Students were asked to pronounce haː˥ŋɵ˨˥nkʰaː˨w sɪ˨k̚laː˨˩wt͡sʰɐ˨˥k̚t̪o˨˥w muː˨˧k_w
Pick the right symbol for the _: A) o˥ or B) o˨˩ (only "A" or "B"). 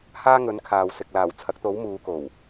B